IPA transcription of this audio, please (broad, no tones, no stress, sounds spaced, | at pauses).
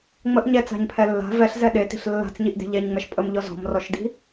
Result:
ŋ͡m ə ʔ ɲ ɛ t͡s a̤ ɲ pʰ ɛ lː a̤ v ɛ ɬ z ɛ ɗ e t i̤ ɬ lː a̤ t͡s ɲ i ʔ d e̤ ʎ ɛ ɲ ŋ͡m ɛ ʃ pʼ ə m ʎ ɔ z ɔ̤ m r ɔ ʃ d i̤